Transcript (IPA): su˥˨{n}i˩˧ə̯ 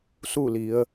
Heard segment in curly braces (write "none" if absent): l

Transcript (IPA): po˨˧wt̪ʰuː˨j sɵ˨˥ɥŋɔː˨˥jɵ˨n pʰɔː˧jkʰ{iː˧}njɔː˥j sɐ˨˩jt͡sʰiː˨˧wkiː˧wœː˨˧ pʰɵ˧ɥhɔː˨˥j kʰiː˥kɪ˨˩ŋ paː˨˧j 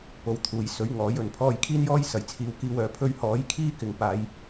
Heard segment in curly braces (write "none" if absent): iː˥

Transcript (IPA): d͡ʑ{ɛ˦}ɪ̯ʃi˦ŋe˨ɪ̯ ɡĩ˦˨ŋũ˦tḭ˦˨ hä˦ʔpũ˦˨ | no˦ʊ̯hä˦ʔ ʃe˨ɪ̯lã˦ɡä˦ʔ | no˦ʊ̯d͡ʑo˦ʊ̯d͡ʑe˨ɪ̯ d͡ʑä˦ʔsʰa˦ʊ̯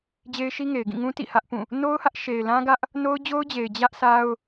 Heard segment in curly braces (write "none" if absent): e˦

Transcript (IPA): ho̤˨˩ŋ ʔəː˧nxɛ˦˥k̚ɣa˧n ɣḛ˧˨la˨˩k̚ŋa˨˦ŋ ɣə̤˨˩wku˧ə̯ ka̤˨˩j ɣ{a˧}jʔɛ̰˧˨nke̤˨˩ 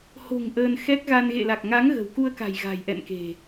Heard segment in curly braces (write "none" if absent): a̤˨˩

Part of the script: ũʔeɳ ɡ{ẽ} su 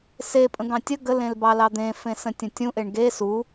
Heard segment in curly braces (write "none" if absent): e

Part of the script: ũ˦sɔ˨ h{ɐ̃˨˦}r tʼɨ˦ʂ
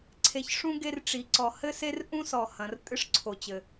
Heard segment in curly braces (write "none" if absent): ɐ̃˨˦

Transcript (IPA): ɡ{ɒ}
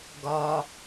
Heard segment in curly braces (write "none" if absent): ɒ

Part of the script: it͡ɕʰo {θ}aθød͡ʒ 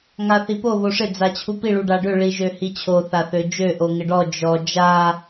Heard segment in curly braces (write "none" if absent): θ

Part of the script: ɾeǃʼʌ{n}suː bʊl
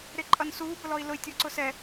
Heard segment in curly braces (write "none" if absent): n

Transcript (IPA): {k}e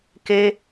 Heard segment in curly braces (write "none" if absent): k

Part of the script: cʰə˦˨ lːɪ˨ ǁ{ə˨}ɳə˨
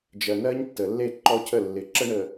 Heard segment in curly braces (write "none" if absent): ə˦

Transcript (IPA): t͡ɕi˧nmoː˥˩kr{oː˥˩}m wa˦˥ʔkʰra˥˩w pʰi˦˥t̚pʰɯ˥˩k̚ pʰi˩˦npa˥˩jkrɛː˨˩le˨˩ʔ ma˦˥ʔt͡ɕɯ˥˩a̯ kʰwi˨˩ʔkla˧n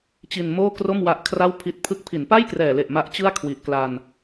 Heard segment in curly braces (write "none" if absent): o˥˩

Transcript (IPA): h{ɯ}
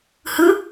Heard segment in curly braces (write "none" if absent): ɯ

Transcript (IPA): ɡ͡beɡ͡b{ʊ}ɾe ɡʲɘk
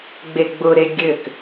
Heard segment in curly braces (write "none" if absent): ʊ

